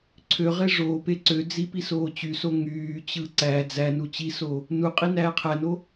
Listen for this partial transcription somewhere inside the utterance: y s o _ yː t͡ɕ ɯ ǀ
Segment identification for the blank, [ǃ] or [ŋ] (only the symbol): ŋ